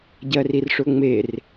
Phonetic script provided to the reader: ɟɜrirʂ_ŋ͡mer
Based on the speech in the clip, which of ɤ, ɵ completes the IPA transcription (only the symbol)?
ɵ